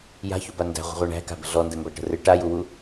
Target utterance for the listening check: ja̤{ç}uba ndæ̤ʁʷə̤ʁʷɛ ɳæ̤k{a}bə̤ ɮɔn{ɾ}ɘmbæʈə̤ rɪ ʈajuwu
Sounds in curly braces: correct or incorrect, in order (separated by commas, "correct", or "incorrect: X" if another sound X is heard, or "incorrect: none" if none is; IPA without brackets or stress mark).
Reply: correct, incorrect: a̤, incorrect: d